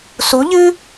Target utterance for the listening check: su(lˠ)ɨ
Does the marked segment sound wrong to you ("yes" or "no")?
yes